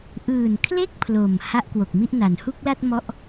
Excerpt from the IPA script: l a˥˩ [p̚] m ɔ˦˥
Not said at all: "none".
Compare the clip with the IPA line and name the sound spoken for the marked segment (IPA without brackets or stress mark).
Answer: t̚